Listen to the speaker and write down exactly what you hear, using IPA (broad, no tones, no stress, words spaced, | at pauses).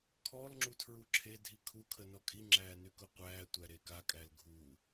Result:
kʰɔlŋ͡ǁu tʰɹuǁʰedʱi kʰukʰə nɔkʼiŋ͡ǁæː nykʊqʷæːtʷæ ɾekakʼæl ɡʱu